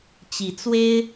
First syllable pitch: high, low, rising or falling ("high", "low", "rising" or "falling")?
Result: rising